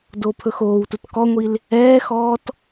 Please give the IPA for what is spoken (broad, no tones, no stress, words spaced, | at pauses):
dopʰɵxoːwtut kɔŋʷil | ɛːxɔːt